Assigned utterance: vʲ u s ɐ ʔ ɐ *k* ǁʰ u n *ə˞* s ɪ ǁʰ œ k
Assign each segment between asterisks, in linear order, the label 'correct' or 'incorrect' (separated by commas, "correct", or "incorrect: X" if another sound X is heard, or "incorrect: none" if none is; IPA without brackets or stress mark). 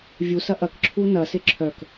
correct, incorrect: ɐ